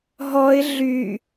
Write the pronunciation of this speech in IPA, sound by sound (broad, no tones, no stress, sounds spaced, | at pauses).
ɦ ɔ ɪ̯ ɮ y